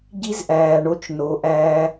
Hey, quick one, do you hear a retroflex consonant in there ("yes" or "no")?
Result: yes